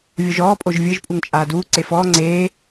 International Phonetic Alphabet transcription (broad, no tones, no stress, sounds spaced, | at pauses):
vʲ o ʒ ɔː pʼ o ʒ vʲ ɯ ʒ pʼ u ŋ t͡ʃʼ aː d uː ǀ e f ɔː ŋ͡ǀ eː